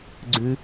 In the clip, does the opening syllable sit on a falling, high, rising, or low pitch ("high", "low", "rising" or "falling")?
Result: low